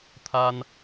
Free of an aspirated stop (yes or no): no